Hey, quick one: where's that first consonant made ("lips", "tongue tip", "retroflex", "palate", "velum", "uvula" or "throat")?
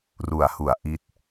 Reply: tongue tip